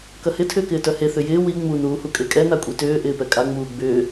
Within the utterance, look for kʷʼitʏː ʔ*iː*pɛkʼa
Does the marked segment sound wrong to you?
yes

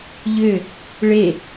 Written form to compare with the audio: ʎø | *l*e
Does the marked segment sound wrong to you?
yes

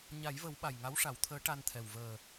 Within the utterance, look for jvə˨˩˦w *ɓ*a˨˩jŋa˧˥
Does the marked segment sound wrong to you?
no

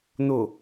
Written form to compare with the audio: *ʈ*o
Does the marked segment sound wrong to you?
yes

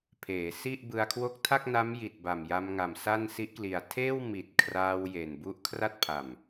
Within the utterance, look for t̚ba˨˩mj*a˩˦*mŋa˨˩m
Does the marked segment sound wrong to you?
yes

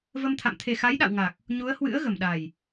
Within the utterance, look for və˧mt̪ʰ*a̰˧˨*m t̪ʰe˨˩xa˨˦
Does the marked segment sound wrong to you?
no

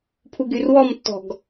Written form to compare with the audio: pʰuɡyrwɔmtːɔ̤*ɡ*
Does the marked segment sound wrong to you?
no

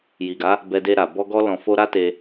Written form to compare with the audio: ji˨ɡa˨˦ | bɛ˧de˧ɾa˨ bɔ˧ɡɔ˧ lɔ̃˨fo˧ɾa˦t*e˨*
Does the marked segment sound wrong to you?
yes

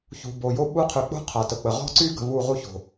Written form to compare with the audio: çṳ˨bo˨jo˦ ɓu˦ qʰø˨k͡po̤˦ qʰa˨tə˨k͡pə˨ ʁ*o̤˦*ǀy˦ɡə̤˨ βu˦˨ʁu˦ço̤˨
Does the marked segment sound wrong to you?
yes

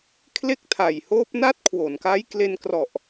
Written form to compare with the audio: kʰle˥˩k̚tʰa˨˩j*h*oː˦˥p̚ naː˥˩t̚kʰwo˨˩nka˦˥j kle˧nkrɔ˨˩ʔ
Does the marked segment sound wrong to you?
no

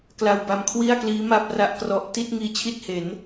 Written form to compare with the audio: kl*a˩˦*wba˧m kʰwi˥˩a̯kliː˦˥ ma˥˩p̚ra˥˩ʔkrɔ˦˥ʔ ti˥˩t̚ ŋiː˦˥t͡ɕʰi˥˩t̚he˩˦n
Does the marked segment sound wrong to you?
yes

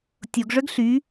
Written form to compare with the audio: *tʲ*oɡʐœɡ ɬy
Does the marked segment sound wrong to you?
no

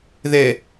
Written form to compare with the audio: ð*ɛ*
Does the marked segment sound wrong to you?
no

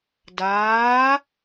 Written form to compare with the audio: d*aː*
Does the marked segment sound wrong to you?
no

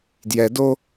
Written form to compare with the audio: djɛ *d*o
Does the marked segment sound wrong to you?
no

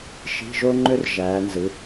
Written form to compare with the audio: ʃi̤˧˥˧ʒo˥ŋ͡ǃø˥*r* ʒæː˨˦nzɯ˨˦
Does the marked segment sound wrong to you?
no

